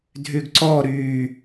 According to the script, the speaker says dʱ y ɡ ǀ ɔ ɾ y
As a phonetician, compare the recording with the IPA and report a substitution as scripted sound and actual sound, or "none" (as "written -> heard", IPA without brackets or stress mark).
none